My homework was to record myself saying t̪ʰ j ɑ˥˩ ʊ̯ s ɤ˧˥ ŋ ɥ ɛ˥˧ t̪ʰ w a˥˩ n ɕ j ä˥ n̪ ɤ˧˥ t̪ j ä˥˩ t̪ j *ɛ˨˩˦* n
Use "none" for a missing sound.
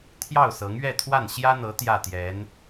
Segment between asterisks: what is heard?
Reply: ɛ˧˥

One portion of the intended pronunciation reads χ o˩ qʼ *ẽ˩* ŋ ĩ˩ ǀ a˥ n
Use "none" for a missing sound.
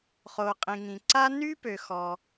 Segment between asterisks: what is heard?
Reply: ĩ˩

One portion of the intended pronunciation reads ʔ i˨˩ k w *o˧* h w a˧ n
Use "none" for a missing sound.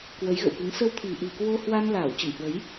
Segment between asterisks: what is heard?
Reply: o˧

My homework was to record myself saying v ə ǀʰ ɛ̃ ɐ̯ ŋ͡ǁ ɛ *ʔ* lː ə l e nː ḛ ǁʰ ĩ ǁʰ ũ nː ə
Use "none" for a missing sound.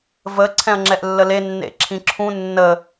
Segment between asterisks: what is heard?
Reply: ʔ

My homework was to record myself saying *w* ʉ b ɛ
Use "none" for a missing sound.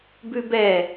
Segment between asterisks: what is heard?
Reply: b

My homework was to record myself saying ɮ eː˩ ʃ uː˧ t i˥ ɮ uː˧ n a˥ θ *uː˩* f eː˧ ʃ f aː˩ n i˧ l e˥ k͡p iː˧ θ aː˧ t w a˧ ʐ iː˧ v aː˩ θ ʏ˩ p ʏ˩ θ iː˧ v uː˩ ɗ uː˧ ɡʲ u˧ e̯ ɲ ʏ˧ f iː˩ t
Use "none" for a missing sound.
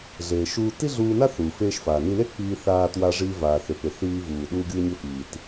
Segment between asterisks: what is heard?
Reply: uː˩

